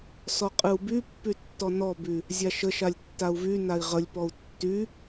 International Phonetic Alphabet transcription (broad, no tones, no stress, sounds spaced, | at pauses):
s ɔ qʼ ɨ u̯ b y pː y tː ɔ n ɔ b y | zʲ a ʃ ə ʃ a lʲ tː a u̯ v y n a i̯ ʁ ə lʲ p ɔ u̯ tː y